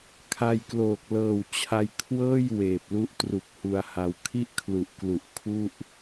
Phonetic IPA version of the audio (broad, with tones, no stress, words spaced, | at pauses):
kʰa˧jkloː˨˩k̚ lɤː˨˩wt͡ɕʰa˧jkʰwɤː˥˩j weː˨˩p̚lu˦˥ʔ tru˨˩k̚ hu˧a̯ha˧w kʰi˥˩ʔkʰlu˨˩ʔklu˨˩ʔ kʰu˥˩ʔ